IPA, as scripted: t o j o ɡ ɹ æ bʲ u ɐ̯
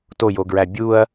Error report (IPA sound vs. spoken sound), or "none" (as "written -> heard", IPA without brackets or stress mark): none